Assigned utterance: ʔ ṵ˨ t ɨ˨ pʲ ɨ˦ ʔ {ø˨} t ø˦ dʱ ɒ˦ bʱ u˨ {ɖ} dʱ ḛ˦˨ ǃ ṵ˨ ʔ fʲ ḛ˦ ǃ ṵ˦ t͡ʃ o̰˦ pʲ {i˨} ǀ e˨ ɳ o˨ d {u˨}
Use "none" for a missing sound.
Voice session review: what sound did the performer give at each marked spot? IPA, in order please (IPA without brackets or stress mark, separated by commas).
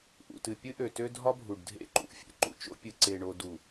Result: ø˨, ɖ, ɨ˨, u˨